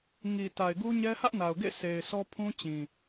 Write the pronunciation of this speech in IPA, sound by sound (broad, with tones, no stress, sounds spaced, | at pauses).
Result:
ŋ i˨ t a˨ ɪ̯ ɡ u˦ ɲ ɛ˦ h ä˦ ʔ n a˨ ʊ̯ ɡ ḛ˦˨ sʰ e˨ ɪ̯ sʰ ɔ˦ pʰ ũ˦ t͡ɕ ĩ˨